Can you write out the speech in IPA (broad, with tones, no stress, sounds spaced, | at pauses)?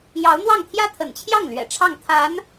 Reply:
j ɑ˧˥ ʊ̯ n̪ w ɑ˥˩ ŋ t̪ʰ j ä˥ t̪ʰ ə̰˨˩ n t͡ɕʰ j ɑ˥˩ ŋ l ɥ ɛ̰˨˩ ʈ͡ʂʰ ɑ˥˩ ŋ t̪ʰ a˧˥ n